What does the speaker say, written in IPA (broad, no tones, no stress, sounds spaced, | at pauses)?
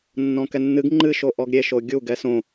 nː ɔ̃ k ɛ nː ɨ ɡ ŋ͡ǃ ɨ ʃ o ʔ ɔ ɡ ɾʲ e ʃ o ɡʲ u ɡ ɛ s õ